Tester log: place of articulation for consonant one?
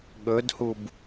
velar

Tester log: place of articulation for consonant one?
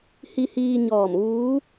glottal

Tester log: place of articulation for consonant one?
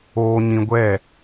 palatal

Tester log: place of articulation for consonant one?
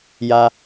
palatal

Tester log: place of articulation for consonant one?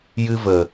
palatal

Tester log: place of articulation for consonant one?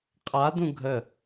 uvular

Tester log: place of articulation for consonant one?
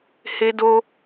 glottal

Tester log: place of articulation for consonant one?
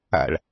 retroflex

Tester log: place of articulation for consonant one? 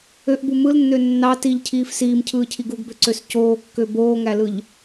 glottal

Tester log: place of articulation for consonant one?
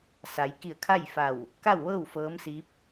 alveolar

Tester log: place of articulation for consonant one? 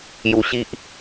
palatal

